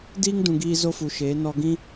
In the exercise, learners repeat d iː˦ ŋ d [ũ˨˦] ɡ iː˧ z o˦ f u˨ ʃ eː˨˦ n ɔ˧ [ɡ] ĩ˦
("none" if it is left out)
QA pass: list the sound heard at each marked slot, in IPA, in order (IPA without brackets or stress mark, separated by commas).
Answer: ũ˨, ɡ